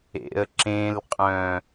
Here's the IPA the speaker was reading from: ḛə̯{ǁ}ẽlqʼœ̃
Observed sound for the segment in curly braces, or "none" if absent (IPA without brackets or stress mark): ǁ